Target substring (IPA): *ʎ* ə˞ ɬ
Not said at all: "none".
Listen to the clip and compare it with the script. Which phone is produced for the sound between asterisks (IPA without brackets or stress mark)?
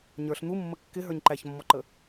ɲ